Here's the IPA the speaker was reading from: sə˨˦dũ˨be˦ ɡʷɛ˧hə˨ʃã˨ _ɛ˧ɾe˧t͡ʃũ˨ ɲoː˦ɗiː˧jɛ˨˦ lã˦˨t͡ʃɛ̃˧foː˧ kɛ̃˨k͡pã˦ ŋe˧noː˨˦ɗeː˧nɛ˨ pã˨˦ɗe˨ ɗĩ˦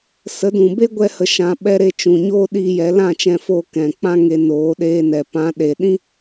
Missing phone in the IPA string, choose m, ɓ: ɓ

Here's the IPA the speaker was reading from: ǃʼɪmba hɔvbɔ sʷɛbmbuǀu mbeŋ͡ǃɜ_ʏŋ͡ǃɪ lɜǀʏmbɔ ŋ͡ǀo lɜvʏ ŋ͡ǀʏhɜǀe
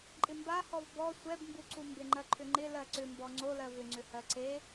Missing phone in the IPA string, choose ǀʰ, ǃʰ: ǃʰ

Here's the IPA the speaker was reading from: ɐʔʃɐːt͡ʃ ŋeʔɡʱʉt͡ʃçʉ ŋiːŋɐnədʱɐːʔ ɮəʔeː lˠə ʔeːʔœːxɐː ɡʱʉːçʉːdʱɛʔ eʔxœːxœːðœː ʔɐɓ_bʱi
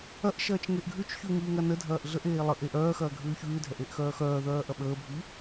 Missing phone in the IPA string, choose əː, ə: əː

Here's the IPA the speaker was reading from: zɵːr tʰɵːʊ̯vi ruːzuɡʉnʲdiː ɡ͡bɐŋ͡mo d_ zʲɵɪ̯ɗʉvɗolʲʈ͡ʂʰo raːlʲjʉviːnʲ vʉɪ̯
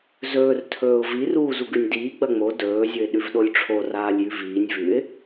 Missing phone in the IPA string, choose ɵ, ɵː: ɵː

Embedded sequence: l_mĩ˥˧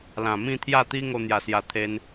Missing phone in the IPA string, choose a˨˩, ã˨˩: ã˨˩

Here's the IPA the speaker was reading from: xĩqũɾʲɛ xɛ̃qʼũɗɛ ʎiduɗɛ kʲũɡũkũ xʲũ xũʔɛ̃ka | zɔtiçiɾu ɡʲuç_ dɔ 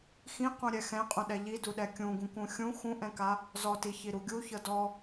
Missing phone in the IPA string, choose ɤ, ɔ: ɤ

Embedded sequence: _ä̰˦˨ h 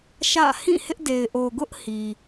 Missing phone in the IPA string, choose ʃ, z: ʃ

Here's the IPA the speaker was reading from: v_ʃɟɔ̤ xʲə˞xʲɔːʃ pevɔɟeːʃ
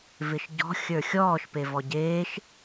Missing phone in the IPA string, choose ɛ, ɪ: ɪ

